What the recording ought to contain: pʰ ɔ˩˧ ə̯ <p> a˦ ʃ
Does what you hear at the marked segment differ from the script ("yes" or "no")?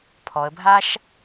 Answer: yes